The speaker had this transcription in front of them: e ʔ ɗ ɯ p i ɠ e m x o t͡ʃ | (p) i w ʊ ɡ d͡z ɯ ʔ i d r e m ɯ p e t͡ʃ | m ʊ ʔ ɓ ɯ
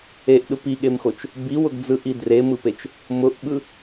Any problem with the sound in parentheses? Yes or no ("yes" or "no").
yes